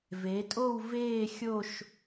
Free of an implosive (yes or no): yes